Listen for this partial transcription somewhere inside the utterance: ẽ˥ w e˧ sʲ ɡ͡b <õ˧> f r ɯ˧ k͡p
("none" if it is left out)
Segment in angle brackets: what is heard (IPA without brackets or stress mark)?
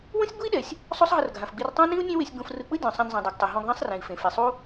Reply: õ˧